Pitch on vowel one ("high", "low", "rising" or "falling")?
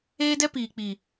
high